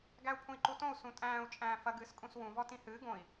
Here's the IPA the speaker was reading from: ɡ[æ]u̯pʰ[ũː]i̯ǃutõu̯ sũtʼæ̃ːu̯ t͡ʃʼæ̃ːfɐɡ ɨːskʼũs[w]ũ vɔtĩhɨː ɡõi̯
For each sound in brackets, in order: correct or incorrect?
correct, incorrect, correct

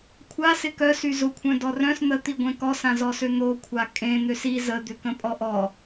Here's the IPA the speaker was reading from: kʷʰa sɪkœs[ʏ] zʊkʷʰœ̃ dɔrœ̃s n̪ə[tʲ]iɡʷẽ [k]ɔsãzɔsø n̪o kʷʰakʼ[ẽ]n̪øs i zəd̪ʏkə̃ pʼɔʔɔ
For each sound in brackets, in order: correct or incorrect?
incorrect, incorrect, correct, correct

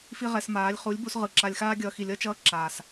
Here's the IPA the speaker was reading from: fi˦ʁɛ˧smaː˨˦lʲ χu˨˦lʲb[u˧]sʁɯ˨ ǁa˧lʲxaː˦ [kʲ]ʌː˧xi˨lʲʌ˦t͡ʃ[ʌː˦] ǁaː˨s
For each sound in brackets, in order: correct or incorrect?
correct, incorrect, correct

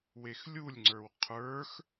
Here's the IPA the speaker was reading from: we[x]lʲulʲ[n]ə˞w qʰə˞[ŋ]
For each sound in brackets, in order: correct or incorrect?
correct, incorrect, incorrect

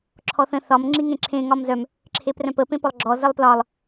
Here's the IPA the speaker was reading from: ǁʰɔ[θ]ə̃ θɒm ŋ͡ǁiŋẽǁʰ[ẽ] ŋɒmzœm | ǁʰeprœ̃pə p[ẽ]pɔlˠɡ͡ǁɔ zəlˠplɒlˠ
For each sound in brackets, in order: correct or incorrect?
correct, correct, correct

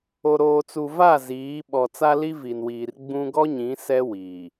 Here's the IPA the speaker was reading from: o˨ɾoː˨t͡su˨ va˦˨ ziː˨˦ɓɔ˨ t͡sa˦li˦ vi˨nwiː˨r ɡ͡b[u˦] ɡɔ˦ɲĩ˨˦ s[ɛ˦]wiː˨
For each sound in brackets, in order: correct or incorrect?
incorrect, correct

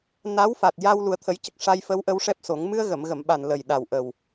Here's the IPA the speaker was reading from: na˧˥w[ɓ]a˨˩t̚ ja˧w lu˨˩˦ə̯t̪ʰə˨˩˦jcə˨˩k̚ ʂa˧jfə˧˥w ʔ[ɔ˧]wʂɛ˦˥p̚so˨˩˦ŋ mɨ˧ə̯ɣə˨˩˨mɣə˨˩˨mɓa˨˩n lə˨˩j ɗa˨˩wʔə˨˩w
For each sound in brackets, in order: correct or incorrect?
incorrect, incorrect

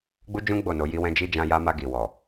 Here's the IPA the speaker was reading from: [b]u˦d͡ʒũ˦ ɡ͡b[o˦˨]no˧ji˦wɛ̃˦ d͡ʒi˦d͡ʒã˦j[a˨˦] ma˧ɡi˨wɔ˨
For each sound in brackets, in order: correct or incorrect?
incorrect, correct, incorrect

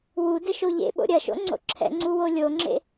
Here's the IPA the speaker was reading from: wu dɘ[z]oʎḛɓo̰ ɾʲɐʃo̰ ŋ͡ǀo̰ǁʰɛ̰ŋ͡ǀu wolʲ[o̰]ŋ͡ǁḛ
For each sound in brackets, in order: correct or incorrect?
incorrect, incorrect

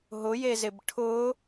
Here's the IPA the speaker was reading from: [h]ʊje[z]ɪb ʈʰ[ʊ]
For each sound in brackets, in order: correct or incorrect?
incorrect, correct, correct

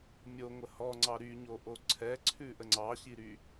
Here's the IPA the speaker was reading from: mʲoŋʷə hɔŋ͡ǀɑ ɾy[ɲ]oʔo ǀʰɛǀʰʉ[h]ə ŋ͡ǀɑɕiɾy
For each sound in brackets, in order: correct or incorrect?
correct, incorrect

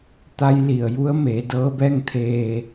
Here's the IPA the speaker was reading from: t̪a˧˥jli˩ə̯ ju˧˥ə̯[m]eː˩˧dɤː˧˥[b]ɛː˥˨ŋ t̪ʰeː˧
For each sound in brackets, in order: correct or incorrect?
correct, correct

